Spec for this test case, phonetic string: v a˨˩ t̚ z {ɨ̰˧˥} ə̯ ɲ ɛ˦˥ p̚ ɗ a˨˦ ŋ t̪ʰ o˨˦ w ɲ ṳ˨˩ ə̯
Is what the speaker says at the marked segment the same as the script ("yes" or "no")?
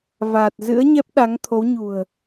yes